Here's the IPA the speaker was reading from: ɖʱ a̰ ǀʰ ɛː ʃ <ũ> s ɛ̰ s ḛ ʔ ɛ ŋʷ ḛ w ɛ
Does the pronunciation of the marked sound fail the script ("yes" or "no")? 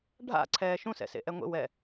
no